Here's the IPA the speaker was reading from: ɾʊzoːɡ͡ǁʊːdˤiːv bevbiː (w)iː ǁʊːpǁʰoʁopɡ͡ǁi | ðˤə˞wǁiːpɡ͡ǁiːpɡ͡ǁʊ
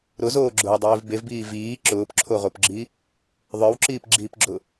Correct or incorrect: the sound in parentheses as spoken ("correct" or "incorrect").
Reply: incorrect